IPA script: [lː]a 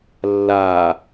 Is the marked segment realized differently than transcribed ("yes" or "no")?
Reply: no